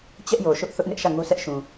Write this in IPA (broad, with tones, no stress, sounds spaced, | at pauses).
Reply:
t͡ɕ ɛ˦ ʔ j o˨ ʃ ʊ˦ ʔ θ ʊ˦ ʔ n ɪ˦ ʔ ʃ ä˦˨ ŋ o˦ sʰ ɛ˦ ʔ ʃ ũ˨